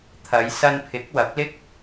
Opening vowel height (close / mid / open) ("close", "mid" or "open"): open